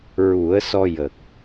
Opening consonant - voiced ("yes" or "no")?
yes